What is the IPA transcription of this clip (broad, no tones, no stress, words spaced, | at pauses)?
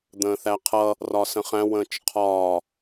d̪ə̃ːθæqʰʌ | rɒːsə̃χæ̃ wə̃ːt͡ʃqʰɒː